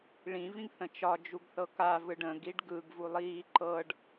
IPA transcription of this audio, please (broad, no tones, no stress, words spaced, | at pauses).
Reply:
ɭĩvĩɡθə̃ t͡ʃɒd͡ʒuɡθɤ kavɯɖ ə̃ɡiɖ ɡɯɡvulˠiː ǃɤɖ